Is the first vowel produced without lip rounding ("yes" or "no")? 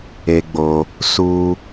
yes